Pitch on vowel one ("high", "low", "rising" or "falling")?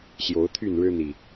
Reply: rising